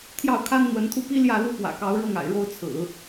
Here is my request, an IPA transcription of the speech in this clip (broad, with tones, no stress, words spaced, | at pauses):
t̪ʰjɑ˥˩ʊ̯kʰa˥n n̪wə˧˥nt̪ʰu˥˩pi˥ ljä˥˩lu˥ pwä̰˨˩kɑ˧˥ʊ̯ɻɤ˥˩ŋa̰˨˩ɪ̯ ɻo˥˩ʊ̯t͡sʰɹ̩˨˩˦